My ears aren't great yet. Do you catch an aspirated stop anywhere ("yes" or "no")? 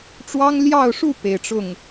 no